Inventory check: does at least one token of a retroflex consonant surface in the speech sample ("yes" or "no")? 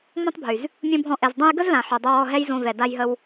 no